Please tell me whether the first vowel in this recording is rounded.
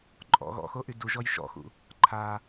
yes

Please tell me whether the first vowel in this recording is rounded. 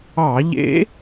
no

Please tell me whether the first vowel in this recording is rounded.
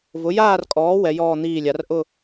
yes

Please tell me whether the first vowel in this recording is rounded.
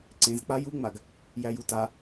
no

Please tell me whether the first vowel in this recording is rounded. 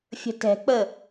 no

